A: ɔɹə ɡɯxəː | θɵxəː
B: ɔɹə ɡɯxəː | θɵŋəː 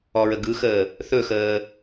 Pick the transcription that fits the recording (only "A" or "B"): A